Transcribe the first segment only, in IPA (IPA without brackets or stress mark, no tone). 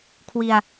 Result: kʰ